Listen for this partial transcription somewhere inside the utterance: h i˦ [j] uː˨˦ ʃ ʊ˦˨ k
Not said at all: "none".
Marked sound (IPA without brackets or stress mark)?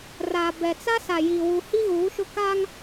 ɣ